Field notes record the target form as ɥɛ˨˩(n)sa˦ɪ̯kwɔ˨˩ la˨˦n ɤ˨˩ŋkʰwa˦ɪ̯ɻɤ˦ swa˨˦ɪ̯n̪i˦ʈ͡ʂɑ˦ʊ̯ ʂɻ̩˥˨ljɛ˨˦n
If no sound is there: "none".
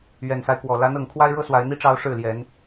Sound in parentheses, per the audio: n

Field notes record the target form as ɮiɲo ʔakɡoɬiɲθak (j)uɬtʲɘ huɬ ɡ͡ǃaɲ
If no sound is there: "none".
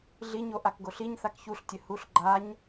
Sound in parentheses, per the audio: ç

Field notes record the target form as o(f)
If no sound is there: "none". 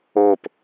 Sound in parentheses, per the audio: p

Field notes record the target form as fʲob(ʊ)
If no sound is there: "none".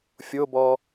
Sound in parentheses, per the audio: ɔ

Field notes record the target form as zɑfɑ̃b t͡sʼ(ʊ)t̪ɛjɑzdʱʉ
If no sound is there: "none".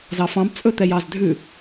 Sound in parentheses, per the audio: ɵ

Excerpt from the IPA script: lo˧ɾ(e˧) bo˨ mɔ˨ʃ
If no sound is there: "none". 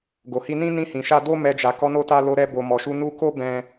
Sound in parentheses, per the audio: ɛ˧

